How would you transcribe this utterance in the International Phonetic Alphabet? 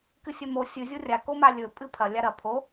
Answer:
k ɨ sʲ ɵ m o sʲ ɨ zʲ o rʲ a k o m a lʲ ɵ pʼ ɨ pʰ ɐ lʲ a ɾ ɐ pʰ o

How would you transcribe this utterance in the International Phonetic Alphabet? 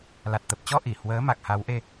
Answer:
l a˨˩ t̚ t̪ ə˨˩ p̚ t͡ɕ ɔ˧ ʔ i˧˩ h w əː˨˦ m a˨˩ k̚ h a˨˦ w ʔ e˧

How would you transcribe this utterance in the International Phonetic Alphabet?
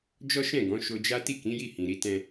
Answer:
d͡ʒ ɔ˦ ʃ ɛ̃˦˨ ɡ ɔ̃˨˦ ʃ o˧ d͡ʒ a˦ t i˦˨ k ĩ˨˦ j i˦˨ h ĩ˨ ɾ i˧ t ɛ̃˧

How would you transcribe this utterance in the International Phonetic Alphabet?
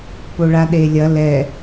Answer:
p o ɭ a ɗ e lʲ ɐ l ɛ

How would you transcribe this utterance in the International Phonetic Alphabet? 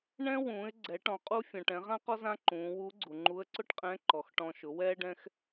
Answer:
ɳ ɛ̃˥ w ũː˩˧ ɪ̯ ɡ͡ǀ ɛ˩˧ ʈ ɔ̃˩ qʼ u˧ fʲ ɔ̃˩ ʈ ɛ̃˩˧ ʁ ã˥ q ɔ˥ z ã˥ ǃ ũː˩˧ w u˧˥ ɡ͡ǀ u˩ ŋ͡ǃ u˧˥ ə̯ ǀ ʊ˥ ʈ qʼ ɛ̃˧˥ ǃ ɔ˩ x ʈ ɔ̃˧ ʃ ʊ˩˧ w ɛː˥ ɖ ɛ̃˥ x

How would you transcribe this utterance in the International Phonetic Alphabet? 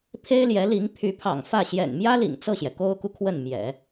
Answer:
pʰ e˥ ɪ̯ l j ɛ˧˥ l i˧˥ ŋ pʰ y˧˥ pʰ ɑ̰˨˩ ŋ f ä˥˩ ɕ j ɛ̰˨˩ n m j ä˥ l ḭ˨˩ ŋ t͡s ɤ˥˩ ɕ j ɛ˩ k o˥ ʊ̯ k u˨ kʰ w ə˥˩ n m j ɛ̰˨˩˦

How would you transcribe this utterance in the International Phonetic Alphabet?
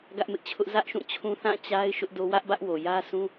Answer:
ɡ ä˦ ʔ m ɪ˦ ʔ t͡ɕʰ ʊ˦ ʔ z ä˦ ʔ ʃ ũ˦˨ t͡ɕʰ ũ˦ θ ã˦˨ t͡ɕ a˦ ɪ̯ ʃ ʊ˦ ʔ d o˦ w ä˦ ʔ b ä˦ ʔ w o˨ j ä˦ s ũ˦

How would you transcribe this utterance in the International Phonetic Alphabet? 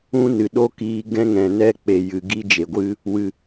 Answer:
ũ˦ n ɨ˨ ɗ o˦ k iː˧ ɡ ɛ̃˦ ŋ ɛ̃˨ n ɛ˦ k͡p e˨ j ɨ˨ ɡ i˦ d͡ʒ e˨ ɡʷ ɨ˦ | w ɨ˨

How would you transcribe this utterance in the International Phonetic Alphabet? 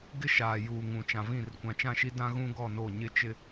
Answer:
ɡ ɪ˦ ʃ aː˨ j uː˨ ŋ ũ˨ t͡ʃ ã˨ v ĩ˦˨ r kʷ ã˨ t͡ʃ ã˦˨ ʃ i˦ d ã˦ ɣ ũ˦ ɡ ɔ˦˨ n o˦˨ ɲ ɪ˦ t͡ʃ ɪ˦

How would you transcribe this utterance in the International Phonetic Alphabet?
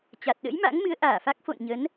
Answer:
t͡ɕ a˨˩ t̚ ɗ ə̰˧˥ j m a̰˧˥ ŋ m ɨ˨˦ ə̯ ʔ aː˧˩ f a˦˥ k̚ f o̰˧˨ n ɲ ə˨˦ n

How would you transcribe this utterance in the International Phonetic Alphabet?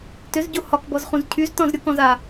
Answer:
t ʏ z ɟ o h ɒ k b ɔ z χ ũ z cʰ y z t ɔ̃ z ɾʲ o k ɔ̃ z a

